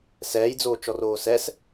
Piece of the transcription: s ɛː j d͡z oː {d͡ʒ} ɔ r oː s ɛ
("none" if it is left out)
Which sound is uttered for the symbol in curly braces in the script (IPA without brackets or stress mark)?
t͡ʃ